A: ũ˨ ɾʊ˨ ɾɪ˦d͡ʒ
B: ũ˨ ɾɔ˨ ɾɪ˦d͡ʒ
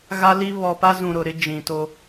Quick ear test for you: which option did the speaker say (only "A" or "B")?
A